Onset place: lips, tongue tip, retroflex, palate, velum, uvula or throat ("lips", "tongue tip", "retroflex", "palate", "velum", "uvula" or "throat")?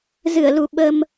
tongue tip